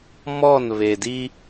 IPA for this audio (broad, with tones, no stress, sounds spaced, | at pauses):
m ɔ˦˨ n β e˨ d i˦